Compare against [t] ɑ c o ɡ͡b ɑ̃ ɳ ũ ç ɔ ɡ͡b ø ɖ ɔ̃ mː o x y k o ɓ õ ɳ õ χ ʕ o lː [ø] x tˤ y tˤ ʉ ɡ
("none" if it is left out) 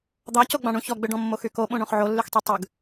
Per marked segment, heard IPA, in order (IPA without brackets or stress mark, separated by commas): d̪, y